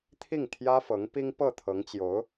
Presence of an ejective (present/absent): absent